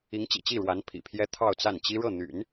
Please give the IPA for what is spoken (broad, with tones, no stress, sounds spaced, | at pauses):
i˧˥ ŋ t͡ɕ ḭ˨˩ t͡ɕ i˥˩ ɻ w a˧˥ n pʰ ḭ˨˩ pʰ j ɛ˥ t̪ʰ ɑ˥˧ ʊ̯ t͡s a˥˩ n t͡ɕ i˥ ɻ ɤ˥˩ n̪ y̰˨˩˦ n